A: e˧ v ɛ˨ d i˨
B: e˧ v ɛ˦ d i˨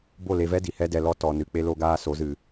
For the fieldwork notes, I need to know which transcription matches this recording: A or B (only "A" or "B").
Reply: B